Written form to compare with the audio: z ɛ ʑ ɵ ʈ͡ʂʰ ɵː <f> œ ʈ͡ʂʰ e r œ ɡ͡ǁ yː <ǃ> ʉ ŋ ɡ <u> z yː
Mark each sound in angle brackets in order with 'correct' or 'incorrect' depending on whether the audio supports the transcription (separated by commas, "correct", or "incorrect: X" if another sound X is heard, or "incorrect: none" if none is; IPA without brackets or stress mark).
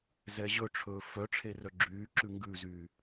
correct, incorrect: ǁ, incorrect: ʉ